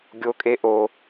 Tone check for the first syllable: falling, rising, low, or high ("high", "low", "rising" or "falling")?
high